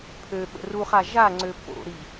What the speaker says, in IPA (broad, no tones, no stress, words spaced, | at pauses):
pʰø ɓə̰ruχa ʒaŋ͡ǀø po̰ɾi